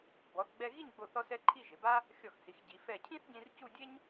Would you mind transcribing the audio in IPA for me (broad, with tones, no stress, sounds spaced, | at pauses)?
b ɔ˩˧ θ ɡ͡b ɛ˧ ɣ i˥˧ ɲ ɡ͡b o˧˩ θ ɔ˧ s ɛ˧ ǃʰ i˥˧ ʒ ɪ˩˧ b a˥ | xʲ ɔ˧˩ x s i˩˧ x ɟ i˩˧ f ɛ˧˩ cʰ ĩ˥ θ ɟ ĩ˧ r c u˥˧ dʲ e˥ ɲ